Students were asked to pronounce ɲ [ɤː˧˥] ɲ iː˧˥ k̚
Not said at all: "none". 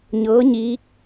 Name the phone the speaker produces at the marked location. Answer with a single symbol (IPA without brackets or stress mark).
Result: ɤː˧˥